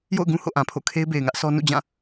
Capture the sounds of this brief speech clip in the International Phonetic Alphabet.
j o̰˦˨ ʊ̯ ɡ ũ˦ h o̰˦˨ ʔ ã˨ pʰ o̰˦˨ kʰ e˦ ɪ̯ b e˨ ɪ̯ ŋ ä˦ ʔ sʰ ɔ˦ n ṵ˦˨ d͡ʑ ã˦˨

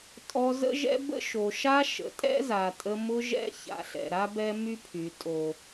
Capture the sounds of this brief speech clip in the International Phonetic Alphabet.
tʼ ɔ˧ z ə̰˦ ʒ ɛ̰˦ b ə̰˦ ʃ o˨ ʃ a˦ ʃ ə̰˨ tʼ ɛ̰˦ z a˨ tʼ ə˧ m ʊ˧ ʒ ɛ̰˧ ç a̰˨ ɬ ɛ̰˨ ɾ a˦ b ɛ˦ m y˦ pʰ y˨ tʼ o˨

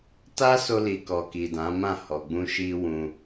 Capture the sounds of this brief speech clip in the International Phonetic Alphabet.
t a˦ s o˧ l i˨ k ɔ˨ k i˨ d ã˨˦ m ã˦˨ h ɔ˨ ɡ͡b ũ˧ ʃ i˧ w ũ˧

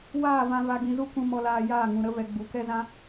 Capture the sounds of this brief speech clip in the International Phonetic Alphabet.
w aː˦˨ v ã˧ v a˧ ɡ ĩ˧ z u˦ k ũ˧ m ɔ˧ l aː˧ j aː˦˨ ŋ ũ˨ ɾ ə˧ v ɛ˨ ɡ͡b u˨ k ɛ˦ z ã˦

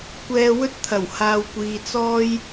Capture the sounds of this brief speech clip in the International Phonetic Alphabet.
kʷ ɛː˧ w ɵ˥ t̚ t̪ʰ ɐ˨˩ w h aː˨ w kʷ iː˨ t͡s ɔː˥ j

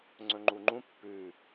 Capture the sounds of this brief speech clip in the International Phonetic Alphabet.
ŋ͡ǀ ɵ ŋ͡ǃ u ŋ͡ǃ ũ pː ʉ

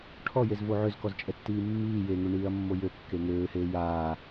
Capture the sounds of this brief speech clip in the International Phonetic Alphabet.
ʈʰ ɔ j e z v o ʕ ø z k ɔ z t͡ʃʼ ɛ tː iː mː iː j e ŋ ø ɳ iː ɐ̯ mː o j ø kː e ŋ øː h eː j aː

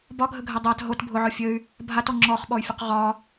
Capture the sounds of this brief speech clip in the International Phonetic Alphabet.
b ɒ ɡʱ ə ɡʱ ɛ dˤ a t ɦ o t bʱ ʊ ʕ ɔ fʲ ə y̯ | bʱ a t ɔ ŋ͡ǁ ɔ χ ɓ ɔ y̯ fʲ ʊ q ʁ ɒ

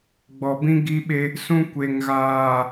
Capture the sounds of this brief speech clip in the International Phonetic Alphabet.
ɡ͡b ɔ˨ b ĩ˦ ɡ i˦ ɓ e˦ | s ũ˦ kʷ e˨ ŋ ɣ aː˨

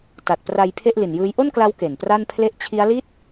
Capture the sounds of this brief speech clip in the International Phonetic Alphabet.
t a˨˩ t̚ p r a˧ j pʰ e˥˩ ʔ l i˨˩ n j ɯː˦˥ j ʔ o˥˩ n k l a˦˥ w k e˨˩ n p r a˥˩ n pʰ l e˦˥ ʔ t͡ɕʰ i˦˥ a̯ l iː˥˩ t̚

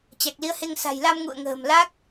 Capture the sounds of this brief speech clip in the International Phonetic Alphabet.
t͡ɕ a˨˩ k̚ l i˨˦ ə̯ h e˧ ŋ s a̤˨˩ j l a˧ m ŋ ṵ˧˨ ə̯ ŋ ə̤ː˨˩ m l a˦˥ k̚

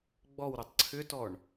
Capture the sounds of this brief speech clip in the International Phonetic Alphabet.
ɡ͡b ɔ w ɾ u tˤ ǀʰ ʏ t ɔ ɳ

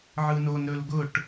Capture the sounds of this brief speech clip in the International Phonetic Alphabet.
ʕ ɯ n o n ɾ ɵ l ɡ ʊ ʈ

